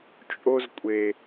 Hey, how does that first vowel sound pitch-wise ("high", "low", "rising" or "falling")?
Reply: high